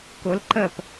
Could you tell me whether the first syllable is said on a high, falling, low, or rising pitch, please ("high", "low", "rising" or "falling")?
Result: rising